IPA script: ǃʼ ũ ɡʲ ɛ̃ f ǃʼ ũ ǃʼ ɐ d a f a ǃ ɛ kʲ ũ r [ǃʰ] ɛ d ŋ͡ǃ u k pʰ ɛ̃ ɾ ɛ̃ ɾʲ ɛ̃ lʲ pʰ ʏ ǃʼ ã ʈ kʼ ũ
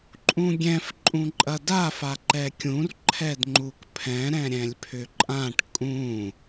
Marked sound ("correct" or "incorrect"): correct